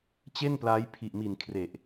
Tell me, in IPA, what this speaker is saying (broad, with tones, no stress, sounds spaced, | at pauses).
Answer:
t͡ɕ e˥˩ n p l a˦˥ j pʰ i˨˩ ʔ m i˨˩ n kʰ r e˨˩ ʔ